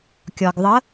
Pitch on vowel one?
low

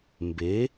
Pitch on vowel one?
rising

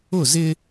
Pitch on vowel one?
falling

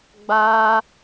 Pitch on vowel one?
high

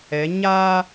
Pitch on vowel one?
rising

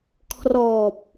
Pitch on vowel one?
low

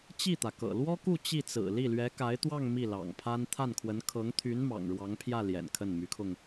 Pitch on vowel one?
falling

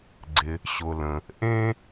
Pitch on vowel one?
low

